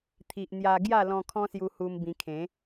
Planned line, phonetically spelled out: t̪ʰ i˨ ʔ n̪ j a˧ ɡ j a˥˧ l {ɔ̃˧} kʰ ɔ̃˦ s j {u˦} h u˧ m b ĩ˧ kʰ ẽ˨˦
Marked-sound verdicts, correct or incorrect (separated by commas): correct, incorrect